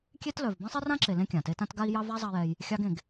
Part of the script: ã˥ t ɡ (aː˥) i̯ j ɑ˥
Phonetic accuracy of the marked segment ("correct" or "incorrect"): incorrect